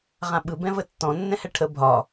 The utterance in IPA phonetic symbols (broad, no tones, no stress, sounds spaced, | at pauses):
ʁ ã ɓ ɯ b ɛ̃ v ə tː ɔ̃ nː ɛ̃ h ɛ ʈʰ ə bʱ ɒ